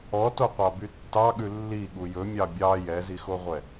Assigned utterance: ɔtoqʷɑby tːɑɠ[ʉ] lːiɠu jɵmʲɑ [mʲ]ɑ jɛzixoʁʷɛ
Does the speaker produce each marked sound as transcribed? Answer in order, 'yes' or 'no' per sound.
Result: yes, no

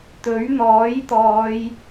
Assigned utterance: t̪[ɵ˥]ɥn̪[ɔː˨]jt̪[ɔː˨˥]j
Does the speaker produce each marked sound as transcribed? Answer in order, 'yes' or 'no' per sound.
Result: no, no, no

